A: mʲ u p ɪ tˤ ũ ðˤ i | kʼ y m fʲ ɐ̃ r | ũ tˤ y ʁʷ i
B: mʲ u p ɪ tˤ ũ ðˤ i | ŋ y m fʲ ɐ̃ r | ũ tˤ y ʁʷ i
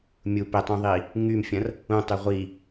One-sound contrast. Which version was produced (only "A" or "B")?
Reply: B